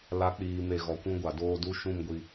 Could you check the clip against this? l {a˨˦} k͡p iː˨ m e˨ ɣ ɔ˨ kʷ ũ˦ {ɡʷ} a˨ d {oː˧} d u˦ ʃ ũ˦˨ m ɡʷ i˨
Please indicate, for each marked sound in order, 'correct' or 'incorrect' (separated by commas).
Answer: correct, correct, correct